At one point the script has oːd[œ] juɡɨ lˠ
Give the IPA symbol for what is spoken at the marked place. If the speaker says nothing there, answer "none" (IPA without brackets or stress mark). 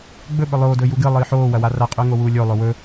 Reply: ɵ